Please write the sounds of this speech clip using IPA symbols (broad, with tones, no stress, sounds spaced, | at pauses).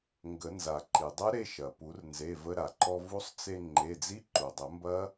ŋ ɡ ə˨˩˦ n z a˩ ǃ i˩ dˤ ɐ˦˥ ɾ e˧ ʃ ɐ˩ p u˨˩˦ r n z e˩˧˩ v ə˧ ɾ a˩ ǃ ɔ˧ v u˦˥ sˤ t͡s e˧ ŋ͡ǃ e˩˧˩ d͡z i˦˥ ǃ u˩ dˤ ə˨˩˦ m b ɐ˦˥